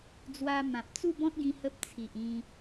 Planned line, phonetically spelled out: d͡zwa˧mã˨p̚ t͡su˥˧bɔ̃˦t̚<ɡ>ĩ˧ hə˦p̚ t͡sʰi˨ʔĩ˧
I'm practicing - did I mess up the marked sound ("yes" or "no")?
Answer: no